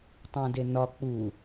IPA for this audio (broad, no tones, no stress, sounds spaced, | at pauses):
tˤ æ̃ d e n ɒ k͡p u